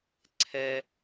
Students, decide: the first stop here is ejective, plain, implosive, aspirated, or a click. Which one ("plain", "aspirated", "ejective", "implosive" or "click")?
click